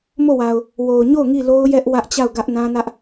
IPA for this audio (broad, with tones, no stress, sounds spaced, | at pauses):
m o˦˨ w a˨ ʊ̯ | w o˨ ʊ̯ ɲ o˦˨ ʊ̯ ŋ i˦˨ l o˦ ʊ̯ j ɛ˦ ʔ w ä˦ ʔ t͡ɕ a˦˨ ʊ̯ ɡ ä˦ ʔ n ã˦ n ä˦ ʔ